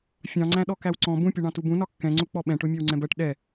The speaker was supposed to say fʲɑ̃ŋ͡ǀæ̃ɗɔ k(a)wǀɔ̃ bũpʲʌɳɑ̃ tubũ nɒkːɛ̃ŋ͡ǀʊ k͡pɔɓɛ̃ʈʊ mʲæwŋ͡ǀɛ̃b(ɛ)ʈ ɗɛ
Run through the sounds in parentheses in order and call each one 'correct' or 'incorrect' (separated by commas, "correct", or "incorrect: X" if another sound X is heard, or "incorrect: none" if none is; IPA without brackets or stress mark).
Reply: incorrect: æ, incorrect: ɜ